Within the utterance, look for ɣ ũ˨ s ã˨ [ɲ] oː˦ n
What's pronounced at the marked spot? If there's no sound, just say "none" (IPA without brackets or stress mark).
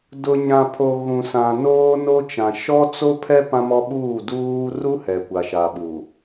n